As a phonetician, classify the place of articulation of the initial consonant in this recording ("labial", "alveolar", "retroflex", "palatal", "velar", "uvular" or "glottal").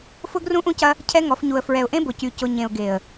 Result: labial